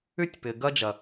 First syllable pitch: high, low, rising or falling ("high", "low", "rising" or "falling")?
high